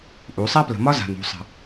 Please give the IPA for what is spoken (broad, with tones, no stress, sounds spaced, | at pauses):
ʔ u˨˦ sˤ a˦ p l ə̤˨ m ɒ˦ z a̤˨ n ṳ˨ sˤ ə̤˨